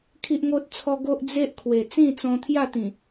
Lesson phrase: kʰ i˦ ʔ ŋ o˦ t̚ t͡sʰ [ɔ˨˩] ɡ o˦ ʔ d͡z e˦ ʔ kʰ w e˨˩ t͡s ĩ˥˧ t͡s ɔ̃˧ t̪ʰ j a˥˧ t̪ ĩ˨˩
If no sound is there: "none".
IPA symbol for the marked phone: ɔ˦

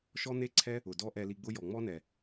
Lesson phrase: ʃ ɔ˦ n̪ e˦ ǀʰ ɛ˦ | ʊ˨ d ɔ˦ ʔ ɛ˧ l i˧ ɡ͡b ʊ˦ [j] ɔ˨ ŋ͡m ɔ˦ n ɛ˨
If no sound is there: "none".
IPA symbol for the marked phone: j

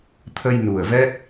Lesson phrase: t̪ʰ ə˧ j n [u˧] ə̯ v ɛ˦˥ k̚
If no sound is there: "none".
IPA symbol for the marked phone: u˨˩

